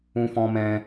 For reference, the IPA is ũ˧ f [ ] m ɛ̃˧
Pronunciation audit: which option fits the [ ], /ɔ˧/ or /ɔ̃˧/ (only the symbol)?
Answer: ɔ̃˧